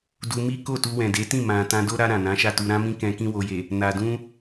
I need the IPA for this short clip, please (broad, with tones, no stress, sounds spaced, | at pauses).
d u˧ m i˦ k o˦˨ t u˧ w ɛ̃˨ d e˨˦ t ĩ˦˨ m ã˨ t ã˧ d o˦ ɾ a˧ ɾ ã˨ n ã˨˦ ʃ a˦˨ t u˧ ɾ ã˧ m ĩ˧ k ɛ̃˧ k ĩ˦ w o˧ j e˨ | n a˨ d ũ˧